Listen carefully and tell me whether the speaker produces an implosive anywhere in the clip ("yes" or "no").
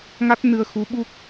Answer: yes